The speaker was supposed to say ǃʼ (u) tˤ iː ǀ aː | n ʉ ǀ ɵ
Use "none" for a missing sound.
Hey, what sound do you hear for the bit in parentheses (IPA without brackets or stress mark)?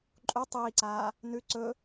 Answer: u